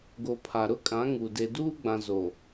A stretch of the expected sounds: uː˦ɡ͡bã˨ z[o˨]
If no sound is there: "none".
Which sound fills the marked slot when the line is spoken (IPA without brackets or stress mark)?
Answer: o˨